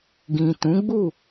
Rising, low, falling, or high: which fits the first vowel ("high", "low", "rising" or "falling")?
low